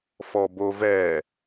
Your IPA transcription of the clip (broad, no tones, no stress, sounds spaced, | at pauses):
f ɔ b o v ɛ